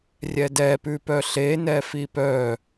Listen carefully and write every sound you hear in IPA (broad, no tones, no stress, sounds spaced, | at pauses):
rʲ ɛ d ɛ p ʉ p œ ɬ e n ɛ f i p œ